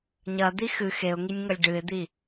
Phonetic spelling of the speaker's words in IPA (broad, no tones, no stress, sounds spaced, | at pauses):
ɲ ɐ d̪ i x ɨ x e ʊ̯ ŋ i nʲ ŋ ɐ lʲ ɖ ɨ ɪ̯ d̪ i